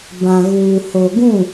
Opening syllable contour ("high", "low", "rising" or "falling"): low